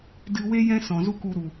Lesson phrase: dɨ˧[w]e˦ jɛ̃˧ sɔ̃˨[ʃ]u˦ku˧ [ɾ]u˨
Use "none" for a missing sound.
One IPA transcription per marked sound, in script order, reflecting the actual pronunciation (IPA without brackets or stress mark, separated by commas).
w, z, ɾ